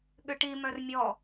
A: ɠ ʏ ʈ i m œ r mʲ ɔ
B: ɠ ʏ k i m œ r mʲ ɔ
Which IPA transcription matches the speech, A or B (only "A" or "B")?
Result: A